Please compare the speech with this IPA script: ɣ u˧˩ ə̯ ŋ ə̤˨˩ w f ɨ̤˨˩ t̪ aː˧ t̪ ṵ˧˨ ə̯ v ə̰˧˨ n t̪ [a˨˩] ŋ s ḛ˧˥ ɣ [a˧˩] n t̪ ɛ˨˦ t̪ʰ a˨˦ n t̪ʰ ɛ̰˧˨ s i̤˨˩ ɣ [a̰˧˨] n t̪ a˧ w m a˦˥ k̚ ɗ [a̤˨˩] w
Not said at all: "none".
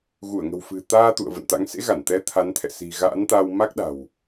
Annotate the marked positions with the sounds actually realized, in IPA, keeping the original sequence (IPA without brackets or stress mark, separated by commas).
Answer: a̰˧˥, a˧˩, a̰˧˥, a̤˨˩